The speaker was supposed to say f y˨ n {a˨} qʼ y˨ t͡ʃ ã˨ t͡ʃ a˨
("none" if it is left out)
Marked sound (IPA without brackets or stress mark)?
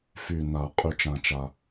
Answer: a˨˩˦